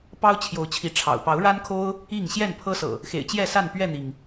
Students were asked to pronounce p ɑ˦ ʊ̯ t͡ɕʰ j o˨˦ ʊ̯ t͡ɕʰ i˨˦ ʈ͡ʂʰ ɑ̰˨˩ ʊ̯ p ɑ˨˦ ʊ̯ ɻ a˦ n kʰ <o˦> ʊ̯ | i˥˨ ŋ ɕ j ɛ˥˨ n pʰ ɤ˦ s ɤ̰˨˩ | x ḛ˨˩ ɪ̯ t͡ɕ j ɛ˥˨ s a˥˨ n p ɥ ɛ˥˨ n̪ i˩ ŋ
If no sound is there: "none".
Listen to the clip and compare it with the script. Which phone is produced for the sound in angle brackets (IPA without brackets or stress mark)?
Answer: o˦